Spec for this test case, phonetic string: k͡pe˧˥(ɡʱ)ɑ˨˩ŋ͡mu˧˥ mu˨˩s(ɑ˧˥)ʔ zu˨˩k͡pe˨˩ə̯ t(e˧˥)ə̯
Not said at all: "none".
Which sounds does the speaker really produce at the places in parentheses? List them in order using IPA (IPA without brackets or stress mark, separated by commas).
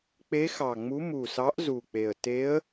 x, ɑ˧˥, e˧˥